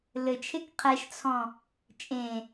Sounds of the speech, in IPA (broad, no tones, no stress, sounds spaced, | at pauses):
l ɘ t͡ʃʰ e k qʰ ɛ ʃ t͡sʰ ɔ̃ | t͡ʃʼ ẽ